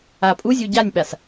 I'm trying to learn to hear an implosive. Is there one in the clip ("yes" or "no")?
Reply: yes